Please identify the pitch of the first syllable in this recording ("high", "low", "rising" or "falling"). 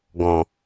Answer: low